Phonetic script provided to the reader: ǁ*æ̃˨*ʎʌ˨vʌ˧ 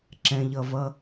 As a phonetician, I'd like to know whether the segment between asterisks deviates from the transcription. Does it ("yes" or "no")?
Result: yes